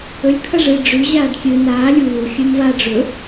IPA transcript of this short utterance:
ɵlʲkʰɐ ʐɨ ɖ͡ʐʉ ʑaːɖkʲɨ naː lʲuː xʲʉmva ɖ͡ʐɵ

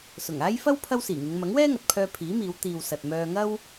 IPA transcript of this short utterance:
sʊ˨˩ŋaː˥j fɐ˥w pʰɐ˥wsiː˨˩ŋɪ˨˧ŋ mɐ˨˥ŋwɛː˥ŋɐ˨t̚pʰœː˧ pʰiː˨˥miː˨˧w t̪iː˨wsɐ˨t̚ mœː˧ŋɐ˥w

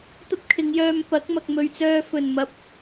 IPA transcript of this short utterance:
t̪ɐ˥p̚kʰɪ˨˧ŋjœː˧m pɐ˨˥k̚ mɐ˨k̚mɵ˨ɥt͡sœː˧ fɵ˨˩nmɐ˨p̚

